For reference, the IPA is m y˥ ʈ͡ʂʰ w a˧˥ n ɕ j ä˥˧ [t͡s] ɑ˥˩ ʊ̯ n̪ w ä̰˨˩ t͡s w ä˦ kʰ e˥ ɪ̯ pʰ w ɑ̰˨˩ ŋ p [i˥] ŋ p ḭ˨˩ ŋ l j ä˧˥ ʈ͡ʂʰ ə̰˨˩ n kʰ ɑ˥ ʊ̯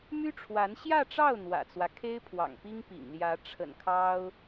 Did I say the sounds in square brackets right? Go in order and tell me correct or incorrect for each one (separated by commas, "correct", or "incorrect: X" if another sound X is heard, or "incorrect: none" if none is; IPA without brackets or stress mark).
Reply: incorrect: ʈ͡ʂ, correct